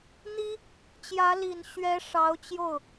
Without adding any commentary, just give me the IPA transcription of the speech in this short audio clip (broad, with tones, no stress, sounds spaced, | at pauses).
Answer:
n̪ i˥ | t͡ɕ j ä˧˥ l i˨˩ n ɕ ɥ ɛ˧˥ ʂ ɑ˧˥ ʊ̯ t͡ɕ j o˥˩ ʊ̯